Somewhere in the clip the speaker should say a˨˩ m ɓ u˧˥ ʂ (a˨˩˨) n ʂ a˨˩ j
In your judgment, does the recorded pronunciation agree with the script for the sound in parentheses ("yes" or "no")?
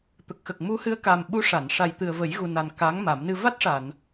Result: yes